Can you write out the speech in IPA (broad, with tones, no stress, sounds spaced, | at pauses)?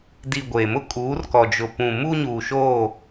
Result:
d i˨ ɡʷ eː˨ m ʊ˦ kʼ uː˨˦ r k ɔ˨ d͡ʒ ʊ˨ p ũ˨ m u˦ ɲ uː˨ ʃ oː˦˨